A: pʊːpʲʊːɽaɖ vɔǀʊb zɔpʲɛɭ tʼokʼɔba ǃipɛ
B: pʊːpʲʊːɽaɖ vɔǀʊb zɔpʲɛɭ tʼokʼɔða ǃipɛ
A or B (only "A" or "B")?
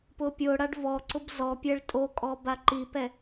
A